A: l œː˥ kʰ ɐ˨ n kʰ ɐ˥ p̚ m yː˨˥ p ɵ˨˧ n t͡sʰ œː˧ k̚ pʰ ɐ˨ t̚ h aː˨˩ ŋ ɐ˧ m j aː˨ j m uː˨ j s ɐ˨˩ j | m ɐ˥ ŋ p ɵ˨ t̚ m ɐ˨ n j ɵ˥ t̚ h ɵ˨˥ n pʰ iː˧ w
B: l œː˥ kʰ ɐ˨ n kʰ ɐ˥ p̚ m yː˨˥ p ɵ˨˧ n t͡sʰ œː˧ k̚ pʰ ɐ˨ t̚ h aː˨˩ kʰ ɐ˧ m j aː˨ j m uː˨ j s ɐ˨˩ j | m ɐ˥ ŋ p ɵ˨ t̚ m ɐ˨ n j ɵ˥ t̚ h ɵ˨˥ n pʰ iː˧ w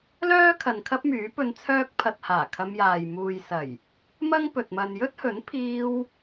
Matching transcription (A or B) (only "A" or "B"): B